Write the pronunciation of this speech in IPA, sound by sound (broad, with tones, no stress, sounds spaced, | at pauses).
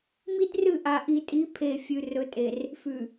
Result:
m i˦ d r ɨ˦˨ ʔ a˨ ʔ i˨ tʼ i˨˦ pʰ e˨ fʲ ʉ˨ r ɵ˨ tʼ e˨ r | f ʉ˨